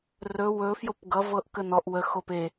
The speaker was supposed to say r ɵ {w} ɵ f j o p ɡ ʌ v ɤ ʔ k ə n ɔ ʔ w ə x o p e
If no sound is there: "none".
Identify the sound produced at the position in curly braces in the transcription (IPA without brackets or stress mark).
w